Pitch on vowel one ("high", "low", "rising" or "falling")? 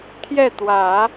falling